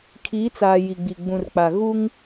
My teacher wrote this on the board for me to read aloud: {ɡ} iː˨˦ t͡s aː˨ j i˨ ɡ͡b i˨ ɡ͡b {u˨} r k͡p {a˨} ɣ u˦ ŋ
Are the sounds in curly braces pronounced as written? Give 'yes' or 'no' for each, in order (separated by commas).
no, no, yes